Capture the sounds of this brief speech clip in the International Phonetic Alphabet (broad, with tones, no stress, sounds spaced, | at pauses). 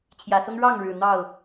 t͡ɕʰ j ä˨˩ s ʊ˦ ŋ ɻ ɑ˥˨ ŋ ɻ ɻ̩˨˩ n̪ ɑ˥˨ ʊ̯